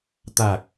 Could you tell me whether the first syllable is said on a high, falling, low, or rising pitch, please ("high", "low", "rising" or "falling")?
low